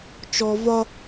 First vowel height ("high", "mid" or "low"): mid